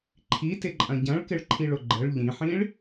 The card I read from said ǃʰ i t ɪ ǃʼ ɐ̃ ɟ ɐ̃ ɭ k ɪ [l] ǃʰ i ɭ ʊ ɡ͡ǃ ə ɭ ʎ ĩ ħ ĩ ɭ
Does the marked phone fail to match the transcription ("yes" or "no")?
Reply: yes